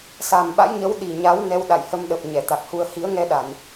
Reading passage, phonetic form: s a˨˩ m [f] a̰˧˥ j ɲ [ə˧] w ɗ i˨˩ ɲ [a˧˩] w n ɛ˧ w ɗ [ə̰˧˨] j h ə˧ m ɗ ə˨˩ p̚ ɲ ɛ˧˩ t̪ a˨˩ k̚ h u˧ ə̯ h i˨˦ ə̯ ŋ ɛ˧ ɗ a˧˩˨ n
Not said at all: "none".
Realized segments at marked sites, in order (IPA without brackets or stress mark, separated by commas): ɓ, ə˨˦, a˨˦, a̰˧˨